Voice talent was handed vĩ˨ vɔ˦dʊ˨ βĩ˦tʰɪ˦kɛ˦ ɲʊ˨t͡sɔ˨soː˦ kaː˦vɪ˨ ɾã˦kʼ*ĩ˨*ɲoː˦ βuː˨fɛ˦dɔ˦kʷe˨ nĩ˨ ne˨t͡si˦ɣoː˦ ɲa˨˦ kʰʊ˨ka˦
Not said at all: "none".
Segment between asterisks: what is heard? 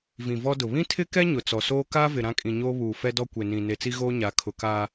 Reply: ĩ˨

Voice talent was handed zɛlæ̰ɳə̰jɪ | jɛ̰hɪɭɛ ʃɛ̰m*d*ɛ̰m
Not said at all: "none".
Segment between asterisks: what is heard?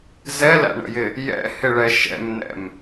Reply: n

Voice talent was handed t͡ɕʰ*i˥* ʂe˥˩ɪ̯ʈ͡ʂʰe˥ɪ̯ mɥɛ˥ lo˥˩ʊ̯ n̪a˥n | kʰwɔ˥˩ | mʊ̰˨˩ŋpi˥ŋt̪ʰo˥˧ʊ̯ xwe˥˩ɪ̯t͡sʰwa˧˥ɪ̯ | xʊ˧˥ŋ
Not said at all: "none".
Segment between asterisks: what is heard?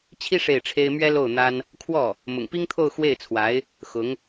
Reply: i˥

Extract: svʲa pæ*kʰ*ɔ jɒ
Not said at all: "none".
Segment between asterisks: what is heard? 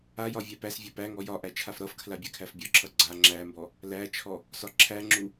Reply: ŋ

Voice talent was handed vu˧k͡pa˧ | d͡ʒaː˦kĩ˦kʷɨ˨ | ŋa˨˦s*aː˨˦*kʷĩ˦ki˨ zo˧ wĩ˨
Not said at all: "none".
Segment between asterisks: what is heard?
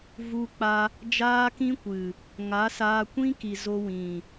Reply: aː˧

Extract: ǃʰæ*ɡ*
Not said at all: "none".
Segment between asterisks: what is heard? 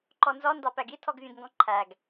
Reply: ɡ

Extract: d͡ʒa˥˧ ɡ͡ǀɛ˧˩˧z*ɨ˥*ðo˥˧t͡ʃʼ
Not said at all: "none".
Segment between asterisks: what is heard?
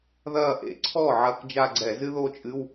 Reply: ɨ˥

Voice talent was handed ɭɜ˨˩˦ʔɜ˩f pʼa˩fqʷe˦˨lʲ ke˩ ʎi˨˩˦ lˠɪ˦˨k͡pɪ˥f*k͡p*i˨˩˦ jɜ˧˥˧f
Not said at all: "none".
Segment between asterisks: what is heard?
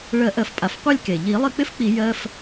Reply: k͡p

